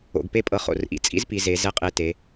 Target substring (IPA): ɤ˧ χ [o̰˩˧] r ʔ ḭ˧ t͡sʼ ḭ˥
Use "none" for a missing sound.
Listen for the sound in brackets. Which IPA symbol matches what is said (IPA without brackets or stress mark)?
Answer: o̰˧˩